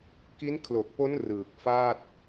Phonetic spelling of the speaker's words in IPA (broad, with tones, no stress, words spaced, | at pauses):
ki˦˥nkʰlo˨˩k̚po˦˥n rɯː˨˩k̚faː˥˩t̚